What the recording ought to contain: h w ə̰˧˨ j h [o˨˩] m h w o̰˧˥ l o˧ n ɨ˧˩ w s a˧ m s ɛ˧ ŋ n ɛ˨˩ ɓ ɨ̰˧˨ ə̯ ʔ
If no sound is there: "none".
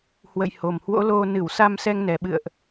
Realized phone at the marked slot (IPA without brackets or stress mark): o˨˩